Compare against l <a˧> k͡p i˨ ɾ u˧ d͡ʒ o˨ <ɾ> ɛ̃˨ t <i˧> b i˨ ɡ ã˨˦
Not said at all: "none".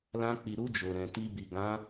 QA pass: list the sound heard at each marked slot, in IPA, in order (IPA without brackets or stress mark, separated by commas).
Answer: ã˧, ɾ, i˧